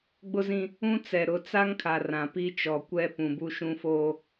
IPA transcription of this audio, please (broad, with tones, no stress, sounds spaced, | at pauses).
ɡ͡b ʊ˦ z ĩ˦ | ũ˦ t͡s ɛ˨ ɾ ʊ˨˦ t͡s a˦ ŋ kʰ a˨ r ã˨ p i˦ t͡ʃ ɔ˨ kʷ ɛ˦ p ũ˨ b u˦ ʃ ũ˦ f oː˦